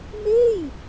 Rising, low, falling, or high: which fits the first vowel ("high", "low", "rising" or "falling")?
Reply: falling